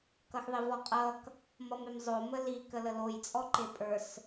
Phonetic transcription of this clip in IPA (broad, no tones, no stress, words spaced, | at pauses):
kʌxðˤivɔqʼʌk | mʌmemzˤo məli kələloj t͡sʼɔǃepʼə˞s